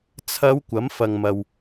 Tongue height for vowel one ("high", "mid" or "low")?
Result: low